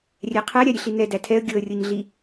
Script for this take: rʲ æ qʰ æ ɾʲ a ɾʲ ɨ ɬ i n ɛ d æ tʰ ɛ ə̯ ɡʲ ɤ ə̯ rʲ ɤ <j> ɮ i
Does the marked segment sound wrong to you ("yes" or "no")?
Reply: yes